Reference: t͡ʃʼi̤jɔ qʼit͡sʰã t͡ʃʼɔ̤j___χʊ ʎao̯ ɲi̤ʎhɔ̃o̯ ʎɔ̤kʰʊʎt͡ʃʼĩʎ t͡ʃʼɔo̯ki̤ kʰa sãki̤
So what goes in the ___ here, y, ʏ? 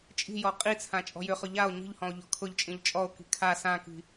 ʏ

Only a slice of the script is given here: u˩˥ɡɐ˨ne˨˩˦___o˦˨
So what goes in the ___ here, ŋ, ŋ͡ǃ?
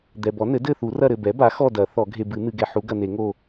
ŋ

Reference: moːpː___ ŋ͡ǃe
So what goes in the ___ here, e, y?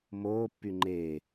y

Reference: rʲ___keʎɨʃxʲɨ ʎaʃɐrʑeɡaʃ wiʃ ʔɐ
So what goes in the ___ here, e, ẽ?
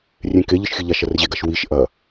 ẽ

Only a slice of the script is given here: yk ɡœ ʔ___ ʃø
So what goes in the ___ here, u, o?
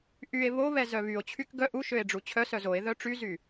u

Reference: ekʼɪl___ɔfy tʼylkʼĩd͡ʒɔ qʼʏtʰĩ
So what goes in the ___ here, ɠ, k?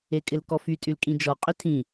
k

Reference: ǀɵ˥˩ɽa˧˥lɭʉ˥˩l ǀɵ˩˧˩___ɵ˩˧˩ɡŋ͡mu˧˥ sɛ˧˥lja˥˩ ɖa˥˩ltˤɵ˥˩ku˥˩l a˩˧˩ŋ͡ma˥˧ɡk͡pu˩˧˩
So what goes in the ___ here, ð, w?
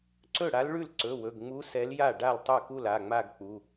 w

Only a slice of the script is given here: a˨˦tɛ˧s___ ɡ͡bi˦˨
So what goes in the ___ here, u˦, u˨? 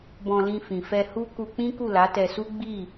u˦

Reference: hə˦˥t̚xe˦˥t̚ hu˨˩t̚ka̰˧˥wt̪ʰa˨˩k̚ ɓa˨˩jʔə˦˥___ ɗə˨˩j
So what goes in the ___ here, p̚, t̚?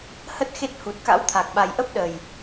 p̚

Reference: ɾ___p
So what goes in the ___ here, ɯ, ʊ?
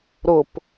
ʊ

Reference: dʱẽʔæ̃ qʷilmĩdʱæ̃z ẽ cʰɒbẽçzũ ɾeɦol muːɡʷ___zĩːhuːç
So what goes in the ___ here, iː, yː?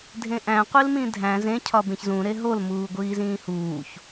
iː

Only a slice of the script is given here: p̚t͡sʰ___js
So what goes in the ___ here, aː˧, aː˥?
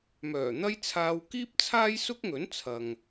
aː˥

